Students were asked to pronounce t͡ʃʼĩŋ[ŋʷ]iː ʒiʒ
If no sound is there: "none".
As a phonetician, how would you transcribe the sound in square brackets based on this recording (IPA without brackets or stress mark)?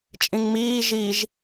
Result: m